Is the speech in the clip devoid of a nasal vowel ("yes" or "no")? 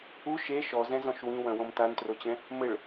no